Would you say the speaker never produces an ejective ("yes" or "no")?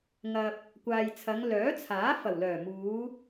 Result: yes